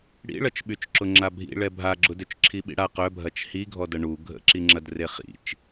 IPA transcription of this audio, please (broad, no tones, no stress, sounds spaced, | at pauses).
ɽ ḭ ɭ ɐ t͡ʃ ɓ y t͡ʃ ǁ ʊ ŋ͡ǁ a bʱ ḭ ɭ ɛ bʱ a ɡ͡ǁ ʊ d ø t͡ʃ ǁʰ i ɓ ḭ ɽ a q œ bʱ ɐ t͡ʃ h i ɡʱ ɔ d ɐ ɳ u ɡʱ ə̰ ǁ i ŋ͡ǁ ɐ d r e χ ḭ t͡ʃ